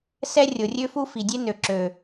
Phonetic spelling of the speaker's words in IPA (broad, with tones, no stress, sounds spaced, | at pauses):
s ɛ˦ rʲ o˨ rʲ ø˦ f u˦ f i˨ dʲ e˦ n ø˨ ǁ ø˨